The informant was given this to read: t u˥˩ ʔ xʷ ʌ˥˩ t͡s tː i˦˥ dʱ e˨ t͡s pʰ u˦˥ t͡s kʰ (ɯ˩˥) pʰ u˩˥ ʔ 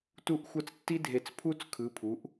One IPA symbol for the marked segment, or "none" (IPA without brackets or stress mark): ɯ˩˥